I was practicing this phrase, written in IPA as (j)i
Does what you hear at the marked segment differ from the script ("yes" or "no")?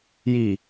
no